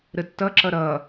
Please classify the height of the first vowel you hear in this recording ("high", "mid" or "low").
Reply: mid